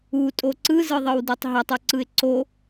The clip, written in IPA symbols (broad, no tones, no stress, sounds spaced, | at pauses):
u tʼ o ǀ ɯ z ɯ ðˤ ɯ w d u tˤ ɦ ə tˤ u ǀ ɯ ɪ̯ ǀ o